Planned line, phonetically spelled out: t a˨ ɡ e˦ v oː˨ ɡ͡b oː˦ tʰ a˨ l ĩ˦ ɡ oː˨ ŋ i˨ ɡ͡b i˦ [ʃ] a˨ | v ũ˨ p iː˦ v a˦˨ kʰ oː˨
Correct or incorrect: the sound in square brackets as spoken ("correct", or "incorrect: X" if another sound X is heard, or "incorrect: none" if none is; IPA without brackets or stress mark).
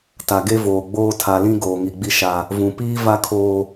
correct